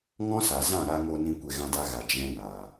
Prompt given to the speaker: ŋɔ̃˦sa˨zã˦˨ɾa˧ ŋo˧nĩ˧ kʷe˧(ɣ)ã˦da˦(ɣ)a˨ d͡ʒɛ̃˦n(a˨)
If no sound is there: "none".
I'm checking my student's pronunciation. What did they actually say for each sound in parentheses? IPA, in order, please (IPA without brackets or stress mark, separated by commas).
ɣ, ɣ, aː˨